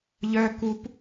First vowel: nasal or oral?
oral